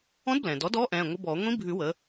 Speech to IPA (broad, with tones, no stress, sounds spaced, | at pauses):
ɔ̃˧˥ d b l ɛ̃ː˩ d ɔ˩˥ d ɔː˧˥ ʔ ɛ̃ː˩˧˩ ŋʷ ə˧˥ b ɔː˨˩˦ ŋʷ ĩ˧˥ bʱ ʉ˨˩˦ w ə˩˥